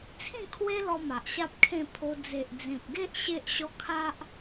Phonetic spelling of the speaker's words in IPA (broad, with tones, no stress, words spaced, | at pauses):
t͡sʰĩ˥˧kʰwe˦lɔ˧ ma˨ʔɕa˦p̚kʰẽ˥˧pʰo˧ d͡ze˨ʔd͡zẽ˨p̚ɡe˦ʔ ɕe˦ʔɕɔ˦ kʰa˦ʔ